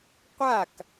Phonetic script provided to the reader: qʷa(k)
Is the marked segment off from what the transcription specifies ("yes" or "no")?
no